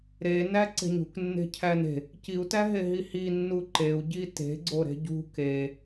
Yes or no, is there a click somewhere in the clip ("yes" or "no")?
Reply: yes